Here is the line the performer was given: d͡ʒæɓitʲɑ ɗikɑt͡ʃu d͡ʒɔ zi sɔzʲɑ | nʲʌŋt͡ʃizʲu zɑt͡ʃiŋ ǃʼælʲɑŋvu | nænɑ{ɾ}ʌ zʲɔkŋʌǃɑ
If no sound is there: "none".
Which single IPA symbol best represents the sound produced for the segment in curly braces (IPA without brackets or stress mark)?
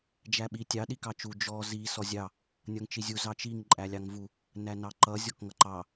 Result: ǃ